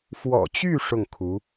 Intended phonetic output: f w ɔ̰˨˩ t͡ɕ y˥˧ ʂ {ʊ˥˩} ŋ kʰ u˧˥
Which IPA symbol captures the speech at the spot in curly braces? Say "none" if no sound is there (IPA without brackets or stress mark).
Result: ʊ˥˩